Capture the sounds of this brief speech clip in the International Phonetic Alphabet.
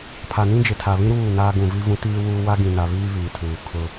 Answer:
pʰ a˨ n ĩ˦ d͡ʒ ɪ˨ tʰ a˨ β ĩ˦ ɾ uː˦˨ n aː˦ ɡ ũ˨ v i˦ v ũ˦ t iː˦ w uː˦ w a˦ ɡ ĩ˨ n a˨ β iː˦ β iː˨ tʰ uː˨ kʰ ʊ˦

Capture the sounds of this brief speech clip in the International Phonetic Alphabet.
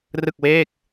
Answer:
r ɯ˥˩ k̚ w eː˥˩ k̚

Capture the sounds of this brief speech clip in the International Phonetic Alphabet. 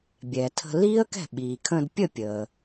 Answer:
bʲ ɛ˩ tʰ ə̤˧ l iː˥ ə̯ k ɛ̤˥˩ ɓ iː˩ kʰ ə̃ː˧ d pʲ ə˥˩ pʲ əː˩

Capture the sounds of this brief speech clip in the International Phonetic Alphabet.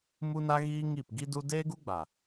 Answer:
m u˦ n a˦ ɣ iː˦ ŋ i˦˨ p ɡ i˦ d u˦ d eː˦ ɡ u˦ ɡ͡b a˨

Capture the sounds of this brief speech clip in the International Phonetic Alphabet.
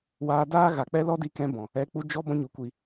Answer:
w aː˧ d aː˦ ɣ a˨ k͡p ɛ˦ l ɔ˦ d i˧ k ɛ̃˧ b ɔ̃˨ | ɛ˧ k͡p u˧ d͡ʒ ɔ˧ b ɔ̃˦ ɲ u˨˦ kʷ i˧

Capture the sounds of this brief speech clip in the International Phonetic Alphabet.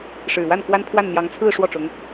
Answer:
ʂ ɻ̩˨˩ w a˥˩ n k w a˥ n pʰ w a˥˩ n n̪ j ɑ˧˥ ŋ t͡sʰ ɹ̩˥˧ ʂ w ɔ˥˩ ʈ͡ʂ ʊ˧˥ ŋ

